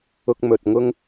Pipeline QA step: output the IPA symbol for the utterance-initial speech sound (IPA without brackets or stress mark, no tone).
ʊ